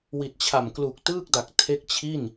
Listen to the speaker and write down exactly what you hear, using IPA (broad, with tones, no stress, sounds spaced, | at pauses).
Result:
w i˨˩ t̚ t͡ɕʰ a˨˩ m k l u˨˩ k̚ t ɯː˥˩ k̚ d a˨˩ k̚ tʰ e˦˥ k̚ t͡ɕʰ i˥˩ n